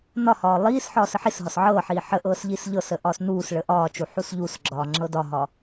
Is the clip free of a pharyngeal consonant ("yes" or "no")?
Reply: no